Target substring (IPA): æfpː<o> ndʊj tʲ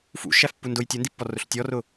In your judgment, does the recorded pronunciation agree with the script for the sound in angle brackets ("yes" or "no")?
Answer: no